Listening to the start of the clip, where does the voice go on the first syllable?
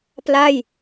falling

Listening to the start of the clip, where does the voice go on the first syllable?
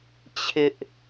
high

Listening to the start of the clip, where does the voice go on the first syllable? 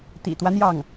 low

